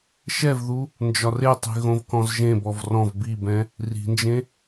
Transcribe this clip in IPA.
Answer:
ʃ ɛ v ð u | n d͡ʒ ɒ r e tˤ i̤ ɣ õ v k ɔ̃ z ʒ ẽ b ɔ v r ɔ̃ v b i b ɛ̃ | r i̤ n d͡ʒ ẽ

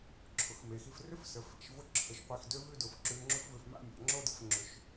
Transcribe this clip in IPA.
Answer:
ǁʰ ʊ˩˧ x m e˩˧ x i˧ f r ʏ˥ f s ə˩˧ f ḭ˩˧ ʃ v ʊ˥ ǁʰ ə˩˧ ʃ qʷ i˧˩ x d ø˥ v ʉ˥˧ d ʊ˩˧ f ǁ ʉ˧ ŋ͡ǁ ʏ˥ f v ʏ˧ f m a̰˥˧ mʲ a̰˩˧ ŋ͡ǁ o˥˧ d ə˥ f ŋ͡ǁ ʏ˧ ʃ

